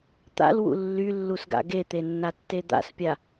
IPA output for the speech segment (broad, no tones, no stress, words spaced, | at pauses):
t̪a̰lwṵ lːylːusɡa̰ ɡet̪enːatːe d̪a̰spʲa